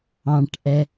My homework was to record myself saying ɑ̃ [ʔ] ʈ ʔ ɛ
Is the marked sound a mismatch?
yes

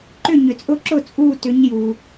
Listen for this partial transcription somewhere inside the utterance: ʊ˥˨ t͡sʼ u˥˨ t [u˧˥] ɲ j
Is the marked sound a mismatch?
yes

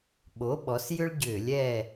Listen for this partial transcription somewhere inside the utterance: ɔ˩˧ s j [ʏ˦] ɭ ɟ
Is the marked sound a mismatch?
no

